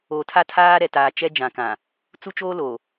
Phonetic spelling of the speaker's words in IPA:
o˨ tʰ a˦ tʰ aː˦ ɾ ɛ˨ t aː˨ t͡ʃ ɛ˦ d͡ʒ ã˨ k ã˨ | t͡s u˦ t͡ʃ oː˦ l o˨

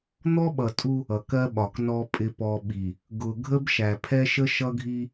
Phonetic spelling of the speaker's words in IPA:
n̪ ɔ˦ ɓ ʌ˨ tʼ u˦ | ʌ˨ k ɜ˦ ɓ ɒ˨ k n ɔ˦ pʼ ɪ˨ p ɔ˨ ɓ i˨ | ɡ ʊ˨ ɡʱ ə˦ b ʃ æ˨ pʰ ɛ˦ ʃ ə˦ ʃ ʌ˦ ɡʱ i˦

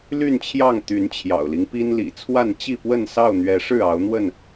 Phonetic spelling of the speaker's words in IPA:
l y˥˨ n t͡ɕʰ j ɑ˥˨ ŋ t̪ y˨˦ n t͡ɕʰ j ɑ̰˨˩ ʊ̯ l i˦ ŋ p i˦ n l ḭ˨˩ t͡sʰ w a˥˨ n t͡ɕ i˥˨ p w ə˥˨ n s ɑ˥˨ ʊ̯ n̪ ɥ ɛ˨˦ ʂ ɻ̩˥˨ ɑ˨˦ ʊ̯ n̪ w ə˥˨ n

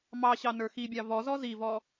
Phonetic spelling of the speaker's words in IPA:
m ɑ ɕ ɑ n ə˞ x i bʲ ɑ v ɔ z ɔ z i v ɔ

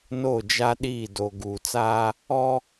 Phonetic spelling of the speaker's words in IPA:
n o˦˨ d͡ʒ a˦ ɗ iː˦˨ d o˨ ɡ uː˨ t͡s aː˦ | ɔ˦

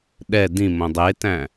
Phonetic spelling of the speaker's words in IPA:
ɗ ɛ d ĩ m õ dˤ e t æ̃

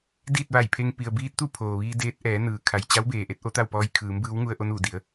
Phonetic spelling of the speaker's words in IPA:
d iː˥˨ t̚ ʋ a˧˩ j pʰ e˧ ŋ p i˩ ə̯ b iː˧ t̚ t̪ u˥˨ pʰ oː˩ ʋ iː˧ d eː˧˥ t̚ ʔ ɛː˩˧ n ɯː˩˧ kʰ a˩ j t͡ɕ a˧˥ w b eː˩ ʔ e˧ t̚ ʔ o˧˥ t̪ a˥˨ w p ɔː˧ j kʰ ɯː˩˧ m b ɯː˧˥ w ŋ u˧ ə̯ ʔ o˧ n uː˧˩ d i˩˧ ə̯

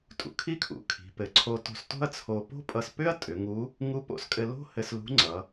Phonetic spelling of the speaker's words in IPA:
tʼ ṵ˧ kʰ i˧˥ kʰ ṵ˩ kʰ i̤˩˧ p ɘ˩˧ ǀʰ o˧ t o̤˧ s t o̤˥ ɐ̯ t͡sʰ o˧ p o̤˥ pʼ ʌ˧ s p ʏ˥ ɐ̯ tʼ ʏ˩˧ ŋ u˧˥ | ŋ u˧˥ p o̰˧ s kʼ ɘ˧ l o̤˥ h ɘ˧ s l ṳ˧˥ ŋ͡ǀ ʌ˩˧

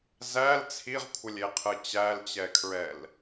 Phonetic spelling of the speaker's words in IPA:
z æ l t͡sʰ i ʁ kʷʰ ə lʲ e qʰ ɯ t͡ɕ æ l t͡ɕ ɛ kʰ ɹ ɛ l

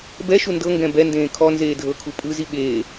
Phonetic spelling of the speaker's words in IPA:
b ɛ ʃ u n d ɤ ŋ ɡ ɛ̃ b ɛ n d ẽː kʰ ɔ n z eː dʱ ɤ kʰ u pʼ ɯ z i ɓ eː

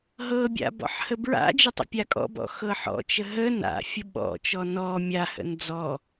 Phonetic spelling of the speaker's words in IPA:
ɦ ɤ bʲ a̰ b ɔ̰ ħ h ə b ɹ a̰ d͡ʒ ə tˤ ə̰ pʲ a kʼ ɔ̰ b ɔ̰ x ɤ ħ ɔ̰ t͡ʃ ə ɦ ə n a̰ fʲ ə ɓ ɔ̰ t͡ʃ ɔ n ɔ mʲ a h ə̰ n d͡z ɔ

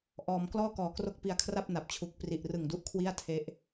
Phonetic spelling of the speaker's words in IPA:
ʔ ɔː˧ m k l ɔː˥˩ k ɔː˨˩ k r o˥˩ k̚ p i˧ a̯ kʰ r a˥˩ p̚ n a˨˩ p̚ t͡ɕʰ u˨˩ k̚ p r i˨˩ ʔ r ɯ˨˩ ŋ d u˦˥ ʔ kʰ w i˥˩ a̯ tʰ e˦˥ ʔ

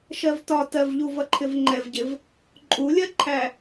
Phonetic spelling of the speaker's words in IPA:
ʃ ɜ v t ɒ t ɜ v ʎ u v ʌ ǃʰ ɪ v ŋ͡ǃ ɛ v ɟ ɪ v | ǃʼ u lʲ ɜ ǃʰ æ

